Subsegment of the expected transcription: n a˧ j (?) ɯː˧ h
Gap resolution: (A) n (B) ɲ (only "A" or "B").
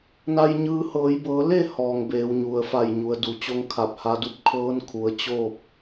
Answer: B